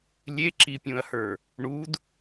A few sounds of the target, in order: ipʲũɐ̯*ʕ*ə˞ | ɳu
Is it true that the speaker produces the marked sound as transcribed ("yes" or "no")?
no